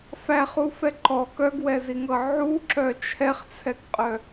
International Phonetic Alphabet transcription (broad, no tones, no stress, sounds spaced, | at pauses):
f æ χ u f ɛ ǃ ɔ k œ ɡ w ɛ z i ŋ ɤ ʕ u ǁ œ t͡ʃʰ ɛ χ t͡sʰ ɛ k qʼ œ